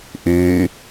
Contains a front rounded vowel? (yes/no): yes